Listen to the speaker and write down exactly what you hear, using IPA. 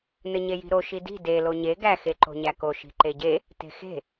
n ɘ ɲ e j i̤ ɾ o ʃ i d i̤ d e l o ɲ e ɡ æ x e ǃ o̤ ɲ æ k o ʃ i̤ ǃ e ɟ e | t e̤ x e̤

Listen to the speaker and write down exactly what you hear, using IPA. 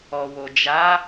ɔ˨ w o˨ d͡ʒ a˨˦

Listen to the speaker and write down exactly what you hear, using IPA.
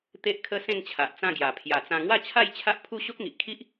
t̪ e˦ ʔ kʰ ə˦ s ẽ˥˧ ŋ t͡ɕʰ a˨ ʔ t͡s ã˥˧ ɡ j a˨˩ pʰ j a˨˩ t͡s ã˧ ŋ w a˥˧ t͡ɕʰ a˥˧ j t͡ɕʰ a˦ ʔ pʰ u˦ ɕ o˦ k̚ ŋ i˨ ʔ kʰ i˦ ʔ

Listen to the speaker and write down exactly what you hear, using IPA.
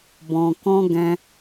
b ɔ̃˧ k ɔ̃˦ ɡ ɛ̃˧

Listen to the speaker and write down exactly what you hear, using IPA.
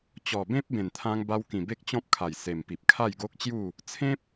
t͡ɕ ɔ˨˩ b ẽ˦ p̚ b ẽ˨˩ n t̪ʰ ã˧ ŋ b a˧ w k ĩ˨˩ b e˦ k̚ t͡ɕ ɔ̃˦ p̚ kʰ a˨˩ j s e˨˩ m p i˨ p̚ kʰ a˥˧ j ɡ o˦ k̚ t͡ɕ j u˥˧ | t͡sʰ ẽ˦ p̚

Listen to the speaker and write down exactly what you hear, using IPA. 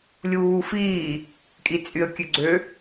lʲ uː f iː | kʼ i t͡sʼ y ə̯ kʲ ø ɡ͡ǀ ø

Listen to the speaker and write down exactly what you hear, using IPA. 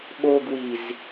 ɓ o ɡ w i z

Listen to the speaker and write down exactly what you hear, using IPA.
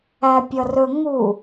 æ pʲ ʌ r ɵ ŋ u

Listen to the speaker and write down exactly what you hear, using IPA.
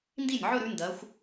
n d i˥˩ nʲ ʕ ɵ˥˧ ɾ ʉ˨˦ n d ɐ˨˦ xʷ

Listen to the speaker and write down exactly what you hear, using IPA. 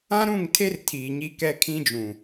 ã˦ ɾ ũ˦˨ ŋ tʰ e˦ r tʰ iː˨ ɲ i˦ k ɛ˦ kʰ ĩ˦ d͡ʒ ũ˨

